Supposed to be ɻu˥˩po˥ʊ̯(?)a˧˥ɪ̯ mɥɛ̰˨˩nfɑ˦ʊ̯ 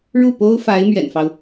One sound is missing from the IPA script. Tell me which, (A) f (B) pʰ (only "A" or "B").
A